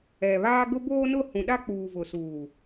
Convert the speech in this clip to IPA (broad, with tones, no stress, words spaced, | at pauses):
ɛ˨βaː˦ ɡʊ˦boː˦ nʊ˦˨hũ˨ɗa˦k͡puː˨ vʊ˨suː˨